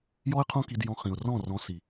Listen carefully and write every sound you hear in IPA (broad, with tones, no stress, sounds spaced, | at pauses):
j ɔ˦ ɪ̯ qʰ õ˦ k i˧ d j ɔ̃˧ χ ĩ˨ ʊ̯ r ɔ̃˦˨ r ɔ̃˧ s i˨